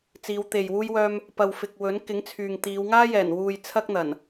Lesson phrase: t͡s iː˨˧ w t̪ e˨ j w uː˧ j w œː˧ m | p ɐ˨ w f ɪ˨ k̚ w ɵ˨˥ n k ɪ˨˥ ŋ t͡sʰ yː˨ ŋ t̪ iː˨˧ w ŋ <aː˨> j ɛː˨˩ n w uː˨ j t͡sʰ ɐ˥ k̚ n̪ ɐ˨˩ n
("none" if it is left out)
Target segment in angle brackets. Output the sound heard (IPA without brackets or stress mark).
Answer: aː˥